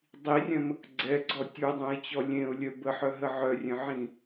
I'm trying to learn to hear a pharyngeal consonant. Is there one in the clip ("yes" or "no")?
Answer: yes